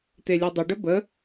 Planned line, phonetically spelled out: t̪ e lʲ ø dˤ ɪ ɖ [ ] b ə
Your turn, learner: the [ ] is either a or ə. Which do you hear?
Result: ə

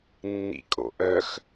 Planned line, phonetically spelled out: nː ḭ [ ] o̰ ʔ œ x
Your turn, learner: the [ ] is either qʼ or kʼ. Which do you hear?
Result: kʼ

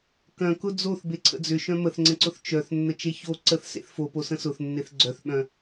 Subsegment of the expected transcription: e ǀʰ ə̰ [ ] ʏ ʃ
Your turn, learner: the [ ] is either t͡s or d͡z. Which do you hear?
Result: d͡z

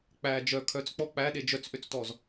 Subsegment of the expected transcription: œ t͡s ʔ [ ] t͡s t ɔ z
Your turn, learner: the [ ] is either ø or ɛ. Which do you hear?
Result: ø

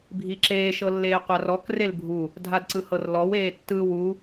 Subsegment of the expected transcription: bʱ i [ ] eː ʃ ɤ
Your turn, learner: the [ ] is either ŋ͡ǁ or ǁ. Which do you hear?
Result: ǁ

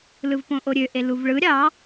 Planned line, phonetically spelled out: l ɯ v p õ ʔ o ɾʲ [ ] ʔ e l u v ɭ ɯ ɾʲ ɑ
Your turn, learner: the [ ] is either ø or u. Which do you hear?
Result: ø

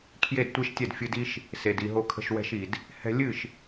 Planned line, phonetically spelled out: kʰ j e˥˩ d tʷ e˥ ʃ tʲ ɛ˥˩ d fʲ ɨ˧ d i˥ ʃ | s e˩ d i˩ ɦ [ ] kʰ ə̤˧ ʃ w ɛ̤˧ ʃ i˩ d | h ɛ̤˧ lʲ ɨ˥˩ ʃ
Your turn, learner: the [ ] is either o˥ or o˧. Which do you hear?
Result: o˧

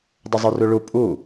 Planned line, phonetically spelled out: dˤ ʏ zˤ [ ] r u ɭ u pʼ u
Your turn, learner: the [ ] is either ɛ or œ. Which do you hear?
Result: œ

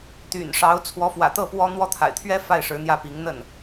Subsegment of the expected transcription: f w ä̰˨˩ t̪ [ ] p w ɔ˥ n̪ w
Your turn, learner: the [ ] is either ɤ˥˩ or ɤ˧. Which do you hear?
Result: ɤ˥˩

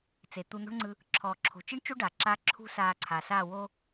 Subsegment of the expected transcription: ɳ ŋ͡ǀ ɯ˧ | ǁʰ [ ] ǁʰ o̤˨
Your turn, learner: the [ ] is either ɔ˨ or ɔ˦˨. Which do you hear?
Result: ɔ˨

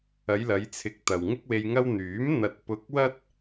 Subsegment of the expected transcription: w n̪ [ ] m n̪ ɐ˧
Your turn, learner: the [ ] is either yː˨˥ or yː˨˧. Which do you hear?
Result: yː˨˥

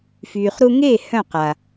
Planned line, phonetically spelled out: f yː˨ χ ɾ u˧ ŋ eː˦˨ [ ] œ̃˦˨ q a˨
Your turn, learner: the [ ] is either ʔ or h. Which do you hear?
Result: h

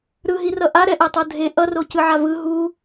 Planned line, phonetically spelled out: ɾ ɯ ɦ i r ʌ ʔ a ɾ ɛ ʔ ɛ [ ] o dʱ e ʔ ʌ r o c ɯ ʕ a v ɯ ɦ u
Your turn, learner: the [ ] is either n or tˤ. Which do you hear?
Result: tˤ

